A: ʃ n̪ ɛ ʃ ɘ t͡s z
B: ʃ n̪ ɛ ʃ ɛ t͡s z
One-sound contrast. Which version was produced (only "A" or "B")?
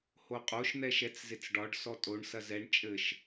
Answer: B